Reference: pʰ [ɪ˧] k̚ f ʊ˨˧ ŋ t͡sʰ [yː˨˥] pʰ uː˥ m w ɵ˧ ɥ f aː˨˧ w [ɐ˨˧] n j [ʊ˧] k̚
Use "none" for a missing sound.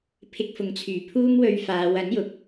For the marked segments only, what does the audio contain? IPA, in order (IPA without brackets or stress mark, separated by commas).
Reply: ɪ˧, yː˨˩, ɐ˨˥, ʊ˨˥